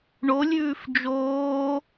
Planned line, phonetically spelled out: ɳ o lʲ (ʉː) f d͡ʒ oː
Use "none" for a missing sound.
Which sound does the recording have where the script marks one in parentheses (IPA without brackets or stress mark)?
ʉː